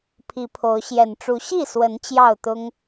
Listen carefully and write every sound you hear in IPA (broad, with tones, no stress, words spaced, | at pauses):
pʰi˨˦pʰo˨˦ʊ̯ ɕjɛ˨˩nʈ͡ʂu˨˦ ɕi˥˨ swə˨˦n t͡ɕjɑ˥˨ʊ̯t̪ʊ˦ŋ